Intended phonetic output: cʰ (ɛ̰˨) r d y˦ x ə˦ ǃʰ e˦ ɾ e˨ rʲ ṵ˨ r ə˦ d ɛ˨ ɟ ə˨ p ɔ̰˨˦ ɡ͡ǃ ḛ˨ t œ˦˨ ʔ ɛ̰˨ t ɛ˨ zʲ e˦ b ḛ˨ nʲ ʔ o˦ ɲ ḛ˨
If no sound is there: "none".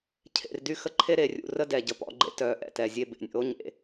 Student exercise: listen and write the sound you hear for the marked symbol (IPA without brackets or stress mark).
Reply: ḛ˨